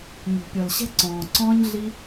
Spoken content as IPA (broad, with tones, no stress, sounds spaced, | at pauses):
ɲ o̤˨ pʲ ɔ˨ l ɕ ɛ̤˦ ǀ ɔ̃ː˨ ǀ ɔ̃ː˦ ɲ ɮ i˦